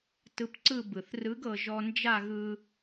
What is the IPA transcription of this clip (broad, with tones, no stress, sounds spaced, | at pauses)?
t ɯ˧ p ǀ ɯ˥˧ b ɯ˩ θ r ɯ˧˥ ɡ ɤ˧ ʒ ɔ˧ n d͡ʒ a˥˧ ɣ ɯ˧